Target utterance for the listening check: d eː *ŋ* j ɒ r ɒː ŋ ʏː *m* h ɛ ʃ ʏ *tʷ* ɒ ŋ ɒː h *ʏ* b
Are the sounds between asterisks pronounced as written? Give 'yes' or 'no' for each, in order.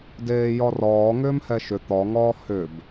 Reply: no, yes, no, yes

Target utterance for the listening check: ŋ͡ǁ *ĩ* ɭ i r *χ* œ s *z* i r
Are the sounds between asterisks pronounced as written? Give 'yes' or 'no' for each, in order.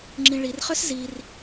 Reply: yes, yes, yes

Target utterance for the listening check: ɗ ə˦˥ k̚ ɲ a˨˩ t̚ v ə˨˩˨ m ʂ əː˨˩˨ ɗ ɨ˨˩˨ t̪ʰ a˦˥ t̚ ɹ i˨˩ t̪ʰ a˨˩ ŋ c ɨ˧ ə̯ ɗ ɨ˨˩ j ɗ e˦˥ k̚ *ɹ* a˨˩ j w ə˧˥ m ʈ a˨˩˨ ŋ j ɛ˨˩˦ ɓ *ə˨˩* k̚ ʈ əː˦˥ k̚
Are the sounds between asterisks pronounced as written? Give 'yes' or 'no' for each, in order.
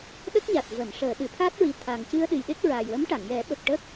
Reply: yes, yes

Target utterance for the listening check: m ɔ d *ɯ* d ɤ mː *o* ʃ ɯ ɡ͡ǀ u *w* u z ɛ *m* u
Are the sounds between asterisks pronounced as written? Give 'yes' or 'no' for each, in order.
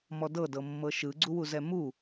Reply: no, no, yes, yes

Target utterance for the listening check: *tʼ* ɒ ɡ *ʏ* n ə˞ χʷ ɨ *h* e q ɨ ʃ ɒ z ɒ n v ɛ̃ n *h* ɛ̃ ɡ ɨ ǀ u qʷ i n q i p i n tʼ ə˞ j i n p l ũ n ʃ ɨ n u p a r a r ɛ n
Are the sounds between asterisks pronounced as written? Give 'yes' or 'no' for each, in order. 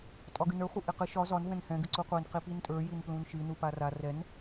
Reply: yes, no, no, yes

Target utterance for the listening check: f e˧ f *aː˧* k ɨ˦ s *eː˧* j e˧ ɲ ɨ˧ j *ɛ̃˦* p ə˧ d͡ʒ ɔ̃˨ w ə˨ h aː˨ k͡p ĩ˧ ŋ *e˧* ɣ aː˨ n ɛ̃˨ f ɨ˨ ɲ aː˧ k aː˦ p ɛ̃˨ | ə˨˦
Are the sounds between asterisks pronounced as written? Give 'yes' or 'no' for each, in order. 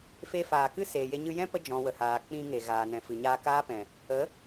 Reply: no, no, yes, no

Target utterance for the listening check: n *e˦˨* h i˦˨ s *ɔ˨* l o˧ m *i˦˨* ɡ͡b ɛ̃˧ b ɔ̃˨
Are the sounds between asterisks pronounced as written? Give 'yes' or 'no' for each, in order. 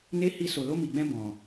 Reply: no, no, no

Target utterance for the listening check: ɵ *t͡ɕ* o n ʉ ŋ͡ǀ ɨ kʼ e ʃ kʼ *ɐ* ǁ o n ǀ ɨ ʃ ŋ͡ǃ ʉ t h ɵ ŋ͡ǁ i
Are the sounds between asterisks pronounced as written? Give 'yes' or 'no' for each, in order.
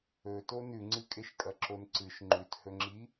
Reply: no, yes

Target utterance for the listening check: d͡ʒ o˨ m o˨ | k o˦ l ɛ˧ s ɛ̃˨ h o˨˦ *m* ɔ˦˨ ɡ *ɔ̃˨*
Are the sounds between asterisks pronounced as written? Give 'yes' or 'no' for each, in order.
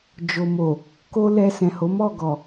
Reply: yes, no

